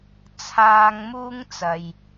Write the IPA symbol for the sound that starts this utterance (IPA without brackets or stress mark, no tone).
t͡sʰ